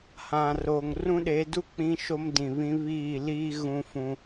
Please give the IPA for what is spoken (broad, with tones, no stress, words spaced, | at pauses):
hã˨ roː˨ŋrũ˦ɗe˨˦du˦ k͡pĩ˦ʃo˦mdĩ˨βĩ˦ βiː˦˨liː˦ ɣũ˦fũ˦